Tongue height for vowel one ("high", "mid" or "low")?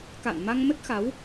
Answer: low